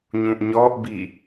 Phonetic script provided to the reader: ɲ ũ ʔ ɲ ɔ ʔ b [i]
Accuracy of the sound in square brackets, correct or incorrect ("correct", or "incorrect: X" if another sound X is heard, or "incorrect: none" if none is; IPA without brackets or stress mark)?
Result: correct